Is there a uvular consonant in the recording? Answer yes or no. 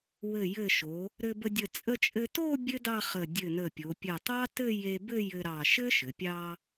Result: yes